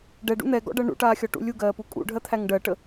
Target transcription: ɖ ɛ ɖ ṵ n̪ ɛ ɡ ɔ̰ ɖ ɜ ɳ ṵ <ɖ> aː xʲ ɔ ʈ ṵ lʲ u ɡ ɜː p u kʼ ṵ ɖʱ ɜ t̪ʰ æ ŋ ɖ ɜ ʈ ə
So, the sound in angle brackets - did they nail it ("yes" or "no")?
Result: no